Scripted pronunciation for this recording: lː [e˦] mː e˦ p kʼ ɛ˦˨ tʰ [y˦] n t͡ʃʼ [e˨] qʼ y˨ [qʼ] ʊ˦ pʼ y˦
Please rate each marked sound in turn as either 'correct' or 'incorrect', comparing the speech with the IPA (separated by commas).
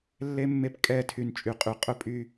correct, incorrect, incorrect, correct